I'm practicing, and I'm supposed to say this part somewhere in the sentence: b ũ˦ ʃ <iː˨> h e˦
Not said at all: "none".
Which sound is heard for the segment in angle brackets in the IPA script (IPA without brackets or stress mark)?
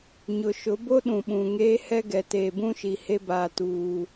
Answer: i˨